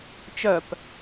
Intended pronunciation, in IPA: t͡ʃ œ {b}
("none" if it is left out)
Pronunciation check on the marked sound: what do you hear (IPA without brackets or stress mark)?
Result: p